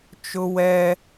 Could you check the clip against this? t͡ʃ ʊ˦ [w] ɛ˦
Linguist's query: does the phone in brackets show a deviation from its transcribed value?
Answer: no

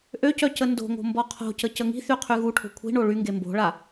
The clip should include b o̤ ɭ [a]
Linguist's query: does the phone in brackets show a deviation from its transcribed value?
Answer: no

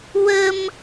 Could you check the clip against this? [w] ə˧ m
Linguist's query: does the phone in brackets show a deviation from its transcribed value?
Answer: no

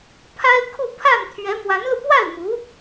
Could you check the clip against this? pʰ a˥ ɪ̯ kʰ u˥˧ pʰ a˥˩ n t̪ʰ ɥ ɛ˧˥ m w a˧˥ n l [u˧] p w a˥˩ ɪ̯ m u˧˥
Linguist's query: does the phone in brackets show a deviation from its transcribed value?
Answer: no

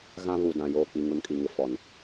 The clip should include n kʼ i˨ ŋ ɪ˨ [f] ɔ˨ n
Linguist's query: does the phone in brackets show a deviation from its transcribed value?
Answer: no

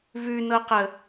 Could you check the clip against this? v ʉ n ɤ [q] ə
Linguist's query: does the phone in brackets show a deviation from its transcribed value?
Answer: no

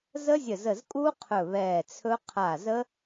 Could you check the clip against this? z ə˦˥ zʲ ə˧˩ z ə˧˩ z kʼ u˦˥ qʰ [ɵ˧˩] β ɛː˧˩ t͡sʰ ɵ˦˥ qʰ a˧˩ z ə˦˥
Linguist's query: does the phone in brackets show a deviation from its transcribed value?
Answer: no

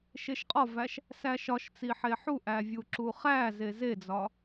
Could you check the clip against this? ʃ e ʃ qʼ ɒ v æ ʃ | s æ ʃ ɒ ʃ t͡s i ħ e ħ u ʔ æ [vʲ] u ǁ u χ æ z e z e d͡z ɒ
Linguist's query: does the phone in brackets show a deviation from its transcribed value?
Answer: no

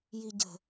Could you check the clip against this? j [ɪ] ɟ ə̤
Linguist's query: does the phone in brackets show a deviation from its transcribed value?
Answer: yes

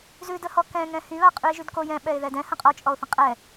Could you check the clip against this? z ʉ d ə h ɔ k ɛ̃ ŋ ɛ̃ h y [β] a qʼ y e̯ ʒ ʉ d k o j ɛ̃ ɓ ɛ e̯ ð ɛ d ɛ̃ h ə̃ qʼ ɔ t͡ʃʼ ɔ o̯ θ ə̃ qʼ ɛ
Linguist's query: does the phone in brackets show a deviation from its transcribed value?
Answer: no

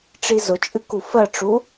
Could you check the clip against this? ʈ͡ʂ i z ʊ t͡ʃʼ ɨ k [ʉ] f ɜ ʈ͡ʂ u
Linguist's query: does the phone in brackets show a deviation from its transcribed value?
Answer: yes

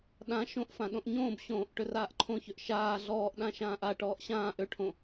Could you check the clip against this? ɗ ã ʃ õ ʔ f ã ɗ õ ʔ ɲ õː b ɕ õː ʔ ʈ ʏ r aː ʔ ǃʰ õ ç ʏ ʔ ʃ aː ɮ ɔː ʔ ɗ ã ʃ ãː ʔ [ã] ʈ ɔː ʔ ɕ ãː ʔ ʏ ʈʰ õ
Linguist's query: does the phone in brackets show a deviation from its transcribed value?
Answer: yes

